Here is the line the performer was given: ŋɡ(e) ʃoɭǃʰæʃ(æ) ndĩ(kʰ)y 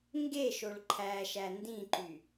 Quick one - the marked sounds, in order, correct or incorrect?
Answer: correct, correct, incorrect: ǃ

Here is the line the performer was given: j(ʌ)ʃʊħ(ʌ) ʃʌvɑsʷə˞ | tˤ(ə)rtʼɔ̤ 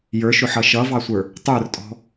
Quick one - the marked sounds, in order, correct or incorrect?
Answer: incorrect: ə˞, correct, incorrect: ə˞

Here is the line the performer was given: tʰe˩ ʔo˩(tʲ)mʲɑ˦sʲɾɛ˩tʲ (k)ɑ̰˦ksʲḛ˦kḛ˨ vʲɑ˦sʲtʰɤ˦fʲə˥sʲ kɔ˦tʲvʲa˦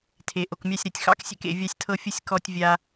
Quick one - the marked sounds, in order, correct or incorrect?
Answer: incorrect: k, incorrect: x

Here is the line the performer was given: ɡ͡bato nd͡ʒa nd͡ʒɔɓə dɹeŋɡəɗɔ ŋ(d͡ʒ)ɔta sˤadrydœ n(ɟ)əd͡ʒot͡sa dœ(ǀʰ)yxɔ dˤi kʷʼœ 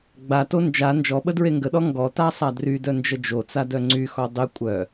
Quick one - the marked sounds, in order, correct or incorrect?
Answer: incorrect: ɡ, incorrect: d͡ʒ, incorrect: ŋ͡ǀ

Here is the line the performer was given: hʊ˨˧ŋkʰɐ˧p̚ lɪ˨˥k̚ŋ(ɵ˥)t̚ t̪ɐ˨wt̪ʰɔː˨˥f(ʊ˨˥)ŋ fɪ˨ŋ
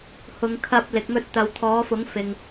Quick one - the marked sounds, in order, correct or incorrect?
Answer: correct, correct

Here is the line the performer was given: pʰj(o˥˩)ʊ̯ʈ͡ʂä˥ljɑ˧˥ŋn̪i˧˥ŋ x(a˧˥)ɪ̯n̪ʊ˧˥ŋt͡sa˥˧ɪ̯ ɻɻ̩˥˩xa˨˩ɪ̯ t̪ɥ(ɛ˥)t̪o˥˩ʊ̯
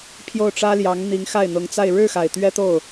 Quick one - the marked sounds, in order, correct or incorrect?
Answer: correct, incorrect: a˥˩, correct

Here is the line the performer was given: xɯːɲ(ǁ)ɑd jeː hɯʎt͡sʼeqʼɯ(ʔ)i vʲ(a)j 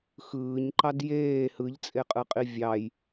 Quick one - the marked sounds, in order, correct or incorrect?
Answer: incorrect: ǃ, incorrect: qʼ, incorrect: ɑ

